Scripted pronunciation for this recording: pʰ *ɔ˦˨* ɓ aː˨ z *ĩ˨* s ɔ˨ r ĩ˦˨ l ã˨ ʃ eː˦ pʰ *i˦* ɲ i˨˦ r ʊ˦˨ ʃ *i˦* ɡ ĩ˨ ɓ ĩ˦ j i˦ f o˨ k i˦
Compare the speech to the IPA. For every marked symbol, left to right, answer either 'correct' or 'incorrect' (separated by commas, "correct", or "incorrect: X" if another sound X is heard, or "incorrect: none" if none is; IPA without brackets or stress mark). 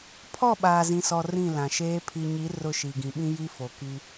correct, correct, incorrect: i˨, incorrect: i˨